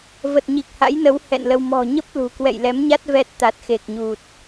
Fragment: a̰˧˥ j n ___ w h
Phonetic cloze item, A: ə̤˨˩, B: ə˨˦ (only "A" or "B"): B